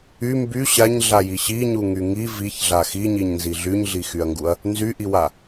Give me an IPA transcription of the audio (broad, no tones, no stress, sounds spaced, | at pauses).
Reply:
y m b y ɕ a ɲ ɮ a j i ɕ i ɲ u ŋ y ŋ i v i ç ɮ a x i ɲ i ɲ n z i ɮ y ɲ ɮ i x y ɐ̯ ŋ ɡ u ɐ̯ | n z y ʔ i w a